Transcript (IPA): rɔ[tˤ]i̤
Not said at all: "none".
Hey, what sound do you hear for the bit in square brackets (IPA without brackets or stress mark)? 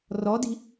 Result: d